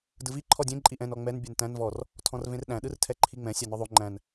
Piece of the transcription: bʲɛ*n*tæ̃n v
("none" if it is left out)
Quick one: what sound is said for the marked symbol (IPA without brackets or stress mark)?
n